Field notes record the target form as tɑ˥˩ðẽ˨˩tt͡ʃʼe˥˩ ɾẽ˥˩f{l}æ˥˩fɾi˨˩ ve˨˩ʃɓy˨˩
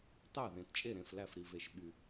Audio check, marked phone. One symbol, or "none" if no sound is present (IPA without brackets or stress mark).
l